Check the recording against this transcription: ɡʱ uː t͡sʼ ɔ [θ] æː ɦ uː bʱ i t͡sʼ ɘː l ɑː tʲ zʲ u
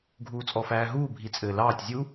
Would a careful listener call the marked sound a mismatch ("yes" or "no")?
yes